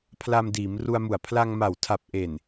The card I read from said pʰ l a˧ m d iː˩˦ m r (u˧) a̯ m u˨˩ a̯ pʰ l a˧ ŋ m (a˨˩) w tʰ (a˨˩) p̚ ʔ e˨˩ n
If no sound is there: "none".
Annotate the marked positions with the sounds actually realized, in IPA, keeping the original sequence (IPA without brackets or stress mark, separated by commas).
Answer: u˧, a˨˩, a˨˩